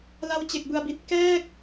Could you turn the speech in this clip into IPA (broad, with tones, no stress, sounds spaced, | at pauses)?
l a˦˥ w t͡ɕ e˨˩ k̚ b ɯ˨˩ a̯ b i˨˩ t̚ k ɛː˥˩ k̚